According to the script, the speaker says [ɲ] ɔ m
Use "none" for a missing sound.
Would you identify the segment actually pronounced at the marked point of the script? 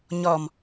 ɲ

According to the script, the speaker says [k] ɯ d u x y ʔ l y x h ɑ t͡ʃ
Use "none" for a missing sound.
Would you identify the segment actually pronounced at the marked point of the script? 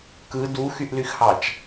k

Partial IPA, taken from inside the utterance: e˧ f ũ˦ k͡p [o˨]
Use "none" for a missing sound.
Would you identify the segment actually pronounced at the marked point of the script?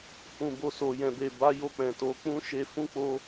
o˧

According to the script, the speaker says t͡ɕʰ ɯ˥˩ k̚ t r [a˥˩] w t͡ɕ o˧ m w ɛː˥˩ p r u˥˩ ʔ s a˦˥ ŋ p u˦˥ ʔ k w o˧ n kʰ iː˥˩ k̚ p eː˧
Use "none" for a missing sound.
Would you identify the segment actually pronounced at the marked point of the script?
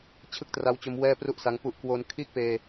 a˧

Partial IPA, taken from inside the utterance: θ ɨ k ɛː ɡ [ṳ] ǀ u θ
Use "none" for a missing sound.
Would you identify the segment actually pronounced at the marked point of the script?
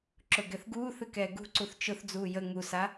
ṳ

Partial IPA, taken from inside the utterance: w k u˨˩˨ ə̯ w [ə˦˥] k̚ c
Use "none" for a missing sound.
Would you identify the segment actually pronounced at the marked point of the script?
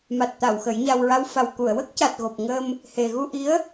ə˦˥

